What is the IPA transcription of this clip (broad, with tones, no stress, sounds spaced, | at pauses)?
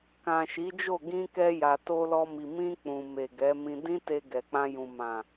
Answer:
k ã˨ ʃ i˨˦ d͡ʒ o˦˨ ɡ ĩ˧ k ɛ˧ j a˨ t o˧ l ɔ˧ m i˨ m ĩ˧ k͡p ũ˨ m e˨ ɡ ɛ˨˦ m ĩ˧ d ĩ˦ t e˧ ɡ ɛ˨ k͡p ã˧ j ũ˨ m ã˨